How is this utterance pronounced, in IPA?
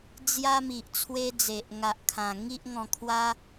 d͡zja˦mi˨ʔ t͡sʰwe˦d͡ze˨ʔ ŋa˨ʔkʰã˨˩ŋi˦ʔ ŋɔ̃˧kʰwa˦

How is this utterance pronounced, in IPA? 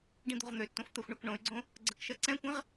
ɖĩd̪o̤ʁn̪øtːõf t̪ɜxʷɳɜkɳõy̯ɡ͡ǀõ | ɡ͡ǀɜkʃɜǀɛ̃kʷɛ̃ʁ

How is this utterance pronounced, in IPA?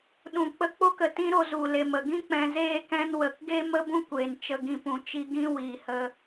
ɗũ˨k͡pə˧ k͡po˦kə˨tĩ˦ɾo˧ zu˨le˨m ə˨ɡĩ˦ k͡pɛ̃˧ zeː˦ kɛ̃˧nwə˨kɡe˦ mə˦bũ˦kʷeː˨n t͡ʃə˧ɡĩ˧ pũ˨t͡ʃi˧ɡĩ˦ wiː˨hə˧

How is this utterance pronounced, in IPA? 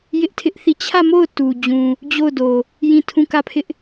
jɪ˦ʔtʰɪ˦ʔθi˦˨ t͡ɕʰä˦˨mo˦˨ʊ̯ tu˨d͡ʑũ˨ | d͡ʑo˦˨ʊ̯ do˨ | jĩ˦˨tʰũ˦˨kä˦˨pʰɪ˦ʔ

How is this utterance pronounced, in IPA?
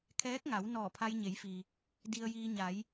kʰɛː˧˥k̚ŋa˩˧w nɔː˧˩pʰa˧jɲe˩˧jfi˩ | di˧ə̯jiː˧ ɲa˩˧j

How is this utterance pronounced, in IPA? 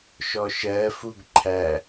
ʃɔʃɜ fuɡǃʰæ

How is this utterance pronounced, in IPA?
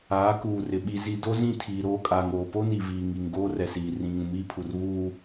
aː˨˦kuː˨rɪ˨ ɓi˨zi˨ do˦zĩ˦˨ tʰiː˨ɾoː˦kʼaː˨ŋoː˨ po˦ni˨ viː˨ ŋi˨ŋ ɡoː˦rɛ˨siː˨ rĩ˨ ŋũ˨miː˦ pʰu˨r βuː˦

